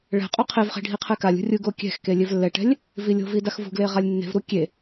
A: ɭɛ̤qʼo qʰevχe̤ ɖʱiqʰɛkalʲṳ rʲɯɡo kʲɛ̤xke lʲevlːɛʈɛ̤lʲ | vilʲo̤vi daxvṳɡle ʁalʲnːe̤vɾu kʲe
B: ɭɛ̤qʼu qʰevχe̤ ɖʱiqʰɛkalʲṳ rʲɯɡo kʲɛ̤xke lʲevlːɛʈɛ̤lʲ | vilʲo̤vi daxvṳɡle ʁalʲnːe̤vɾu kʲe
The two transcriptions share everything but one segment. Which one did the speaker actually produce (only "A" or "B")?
A